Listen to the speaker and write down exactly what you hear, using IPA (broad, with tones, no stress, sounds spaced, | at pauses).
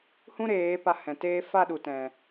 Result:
h ũ˦ ɾ eː˨˦ p a˧ h ɛ̃˨ t eː˧ f a˦˨ ɗ u˨ t ɛ̃˨